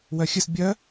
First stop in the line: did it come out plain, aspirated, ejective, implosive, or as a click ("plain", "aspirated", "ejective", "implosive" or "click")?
plain